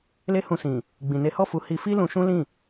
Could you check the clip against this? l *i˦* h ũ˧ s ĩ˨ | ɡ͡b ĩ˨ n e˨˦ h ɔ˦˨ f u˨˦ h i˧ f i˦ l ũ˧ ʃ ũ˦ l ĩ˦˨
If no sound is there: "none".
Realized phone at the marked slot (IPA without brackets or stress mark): e˦